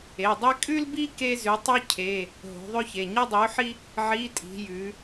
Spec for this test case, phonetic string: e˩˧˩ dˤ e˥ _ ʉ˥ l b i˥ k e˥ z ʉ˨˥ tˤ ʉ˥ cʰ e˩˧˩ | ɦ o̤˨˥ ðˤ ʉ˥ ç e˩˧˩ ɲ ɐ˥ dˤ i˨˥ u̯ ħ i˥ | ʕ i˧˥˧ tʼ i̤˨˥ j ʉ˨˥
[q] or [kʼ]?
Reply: kʼ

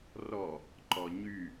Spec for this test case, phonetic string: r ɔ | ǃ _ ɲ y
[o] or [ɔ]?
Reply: ɔ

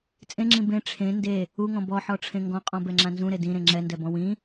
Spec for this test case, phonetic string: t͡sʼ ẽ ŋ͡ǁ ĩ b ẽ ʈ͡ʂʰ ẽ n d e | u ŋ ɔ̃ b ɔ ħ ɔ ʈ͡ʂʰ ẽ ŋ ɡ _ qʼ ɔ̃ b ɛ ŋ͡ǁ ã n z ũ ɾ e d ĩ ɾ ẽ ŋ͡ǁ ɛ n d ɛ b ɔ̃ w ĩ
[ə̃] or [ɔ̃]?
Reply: ɔ̃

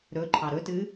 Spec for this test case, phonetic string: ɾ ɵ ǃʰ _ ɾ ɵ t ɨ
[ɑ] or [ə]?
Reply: ɑ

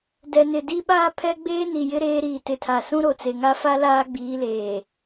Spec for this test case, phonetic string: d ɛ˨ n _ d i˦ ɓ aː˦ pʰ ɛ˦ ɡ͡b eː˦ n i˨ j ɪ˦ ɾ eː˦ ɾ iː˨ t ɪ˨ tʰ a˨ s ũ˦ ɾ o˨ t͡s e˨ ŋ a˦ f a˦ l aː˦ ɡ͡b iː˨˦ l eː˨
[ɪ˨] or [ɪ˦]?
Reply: ɪ˨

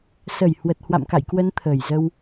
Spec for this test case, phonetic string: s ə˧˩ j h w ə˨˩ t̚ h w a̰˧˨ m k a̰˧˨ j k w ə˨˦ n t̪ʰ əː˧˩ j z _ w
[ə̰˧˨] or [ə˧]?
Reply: ə˧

